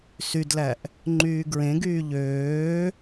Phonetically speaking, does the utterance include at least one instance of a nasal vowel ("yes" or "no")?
yes